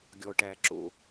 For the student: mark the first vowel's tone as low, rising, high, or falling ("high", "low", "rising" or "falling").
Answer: low